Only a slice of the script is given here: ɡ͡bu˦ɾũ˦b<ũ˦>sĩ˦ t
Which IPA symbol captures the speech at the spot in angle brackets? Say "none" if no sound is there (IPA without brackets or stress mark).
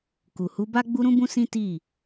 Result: ũ˦